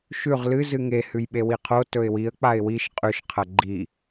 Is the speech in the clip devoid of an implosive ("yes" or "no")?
no